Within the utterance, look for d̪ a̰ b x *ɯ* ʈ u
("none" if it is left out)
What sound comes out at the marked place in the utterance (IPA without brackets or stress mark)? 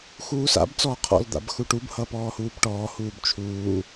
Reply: u